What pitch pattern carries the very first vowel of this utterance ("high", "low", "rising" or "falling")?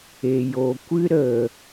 low